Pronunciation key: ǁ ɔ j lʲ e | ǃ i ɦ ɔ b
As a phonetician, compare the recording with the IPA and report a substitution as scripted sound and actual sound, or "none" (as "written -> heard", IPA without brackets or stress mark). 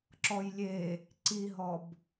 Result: ǃ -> ǀ